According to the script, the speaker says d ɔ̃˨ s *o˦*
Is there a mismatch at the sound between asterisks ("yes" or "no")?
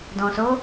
yes